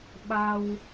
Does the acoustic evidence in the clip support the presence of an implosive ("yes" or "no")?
yes